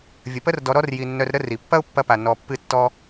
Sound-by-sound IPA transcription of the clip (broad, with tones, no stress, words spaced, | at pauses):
vʲə˨pə˦r dɔ˧ɾɔ˦rji˨nːœ˧r ɾə˦ri˨ pːɐ˦ʊ̯pːɐ˧pa˨ nɔ˧pːɨ˦tːɔ˦